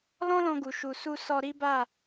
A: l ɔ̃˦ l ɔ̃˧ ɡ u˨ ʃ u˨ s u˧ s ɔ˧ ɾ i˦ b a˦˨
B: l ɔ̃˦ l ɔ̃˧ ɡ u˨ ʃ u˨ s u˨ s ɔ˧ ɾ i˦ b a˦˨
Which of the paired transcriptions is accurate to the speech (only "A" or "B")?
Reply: A